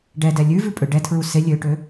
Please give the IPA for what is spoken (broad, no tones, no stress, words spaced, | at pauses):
ɖɛdɛ lʲʉvʉ pʼøɖɛtʰɹu se lʲøʈø